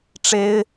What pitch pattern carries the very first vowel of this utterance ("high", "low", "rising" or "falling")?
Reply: high